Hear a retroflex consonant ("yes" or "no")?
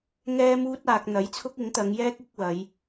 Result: no